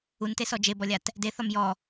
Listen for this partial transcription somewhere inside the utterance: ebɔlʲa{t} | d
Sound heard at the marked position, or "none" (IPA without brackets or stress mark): t